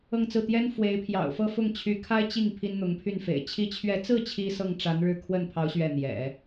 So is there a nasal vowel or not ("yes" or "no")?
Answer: no